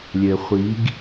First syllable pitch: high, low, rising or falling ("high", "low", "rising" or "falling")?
low